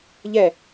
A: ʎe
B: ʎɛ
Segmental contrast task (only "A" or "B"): B